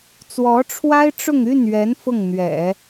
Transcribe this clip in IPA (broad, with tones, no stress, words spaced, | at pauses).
t͡swɔ˧˥ ʈ͡ʂʰwa˥ɪ̯ʈ͡ʂʊ˥˧ŋ y˥˩nɥɛ˧˥n fʊ˥˩ŋn̪ɥɛ̰˨˩˦